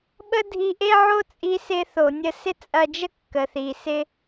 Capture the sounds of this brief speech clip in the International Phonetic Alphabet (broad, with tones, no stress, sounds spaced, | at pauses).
ɓ ə˥ dʱ i˧ ʔ e˥ ʕ o˥ t͡sʼ i˧ s ɪ˧ θ o˩ nʲ ə˧ s ɪ˥ t͡sʼ ɐ˧ d͡ʒ ə˥ kː ə˩ θ i˩ s ɪ˧